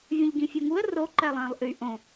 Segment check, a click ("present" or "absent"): present